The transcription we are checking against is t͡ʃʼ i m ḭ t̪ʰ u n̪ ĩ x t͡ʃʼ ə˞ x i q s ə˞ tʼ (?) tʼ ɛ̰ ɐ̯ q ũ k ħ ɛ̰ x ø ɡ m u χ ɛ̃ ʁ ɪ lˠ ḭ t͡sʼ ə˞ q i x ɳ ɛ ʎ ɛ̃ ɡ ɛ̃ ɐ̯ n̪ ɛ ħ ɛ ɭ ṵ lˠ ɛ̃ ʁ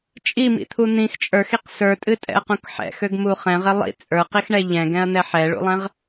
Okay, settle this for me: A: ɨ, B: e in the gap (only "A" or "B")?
A